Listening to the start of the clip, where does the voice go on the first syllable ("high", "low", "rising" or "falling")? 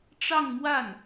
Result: falling